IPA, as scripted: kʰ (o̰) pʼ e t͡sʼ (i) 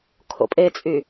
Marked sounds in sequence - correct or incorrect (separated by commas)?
correct, incorrect